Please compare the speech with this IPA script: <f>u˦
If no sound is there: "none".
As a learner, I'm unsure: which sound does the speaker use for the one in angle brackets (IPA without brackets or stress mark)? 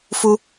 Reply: f